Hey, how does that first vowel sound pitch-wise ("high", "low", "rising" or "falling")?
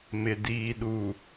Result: low